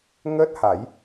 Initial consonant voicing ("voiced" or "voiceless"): voiced